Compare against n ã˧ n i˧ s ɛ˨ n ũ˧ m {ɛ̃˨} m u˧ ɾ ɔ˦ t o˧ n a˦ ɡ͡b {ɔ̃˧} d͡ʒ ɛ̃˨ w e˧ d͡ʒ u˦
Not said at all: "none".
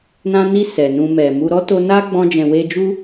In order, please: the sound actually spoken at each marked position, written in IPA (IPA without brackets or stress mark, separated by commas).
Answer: ɛ˨, ɔ̃˧